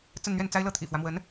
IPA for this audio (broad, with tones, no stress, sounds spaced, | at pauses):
t͡s ə˥˧ n n̪ ɥ ɛ˥˩ n t͡s a˥ ɪ̯ l ɤ˥˩ t̪ʰ ḭ˨˩ f w ä˦ m w ə˧˥ n